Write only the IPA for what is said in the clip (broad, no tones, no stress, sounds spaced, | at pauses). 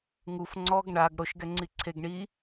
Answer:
ŋ u f ŋ͡ǀ ɔ ɡ ɳ a ɡ ɽ o ʃ ɡ ɛ ŋ͡ǀ i ǀʰ e ɡ ɳ i